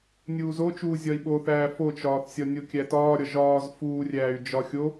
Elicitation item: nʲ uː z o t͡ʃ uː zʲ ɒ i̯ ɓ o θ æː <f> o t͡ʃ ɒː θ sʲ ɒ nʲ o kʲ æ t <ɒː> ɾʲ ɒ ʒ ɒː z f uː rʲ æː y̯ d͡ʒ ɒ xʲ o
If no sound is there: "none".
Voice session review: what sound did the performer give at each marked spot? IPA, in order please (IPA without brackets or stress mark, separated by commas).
f, ɒː